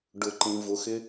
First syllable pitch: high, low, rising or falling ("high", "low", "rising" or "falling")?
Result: low